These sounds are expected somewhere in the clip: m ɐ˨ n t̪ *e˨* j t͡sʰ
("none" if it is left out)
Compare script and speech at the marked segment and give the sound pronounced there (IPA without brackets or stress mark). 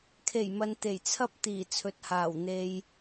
e˨˩